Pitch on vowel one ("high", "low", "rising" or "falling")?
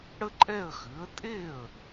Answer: high